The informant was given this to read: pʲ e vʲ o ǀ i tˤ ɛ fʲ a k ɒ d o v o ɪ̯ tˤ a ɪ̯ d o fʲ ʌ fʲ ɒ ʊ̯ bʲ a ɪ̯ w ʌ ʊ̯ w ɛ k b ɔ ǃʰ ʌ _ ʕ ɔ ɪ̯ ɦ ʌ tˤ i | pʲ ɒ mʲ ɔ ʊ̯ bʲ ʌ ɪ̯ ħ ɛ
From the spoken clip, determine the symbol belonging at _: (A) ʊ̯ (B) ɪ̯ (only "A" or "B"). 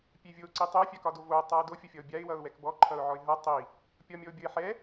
A